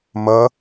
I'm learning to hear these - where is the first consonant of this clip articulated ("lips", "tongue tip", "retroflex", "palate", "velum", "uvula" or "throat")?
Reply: lips